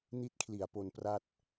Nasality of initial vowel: oral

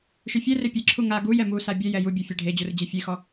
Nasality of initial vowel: oral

